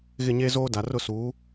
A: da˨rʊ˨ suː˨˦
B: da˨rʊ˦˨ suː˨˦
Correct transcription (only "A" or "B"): B